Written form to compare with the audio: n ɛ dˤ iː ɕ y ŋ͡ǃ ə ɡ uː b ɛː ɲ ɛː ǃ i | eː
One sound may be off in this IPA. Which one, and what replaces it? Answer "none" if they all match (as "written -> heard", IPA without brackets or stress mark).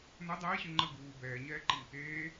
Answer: none